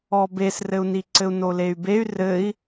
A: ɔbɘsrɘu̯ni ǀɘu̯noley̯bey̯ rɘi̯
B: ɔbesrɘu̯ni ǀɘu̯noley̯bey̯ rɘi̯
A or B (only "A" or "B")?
B